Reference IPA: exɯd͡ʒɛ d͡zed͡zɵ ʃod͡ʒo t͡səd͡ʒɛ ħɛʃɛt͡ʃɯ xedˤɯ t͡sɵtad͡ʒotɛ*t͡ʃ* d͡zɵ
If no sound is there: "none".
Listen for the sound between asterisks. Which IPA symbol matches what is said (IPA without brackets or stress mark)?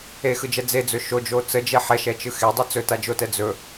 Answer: none